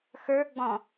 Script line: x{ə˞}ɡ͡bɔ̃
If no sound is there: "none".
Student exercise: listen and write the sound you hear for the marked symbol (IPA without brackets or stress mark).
ə˞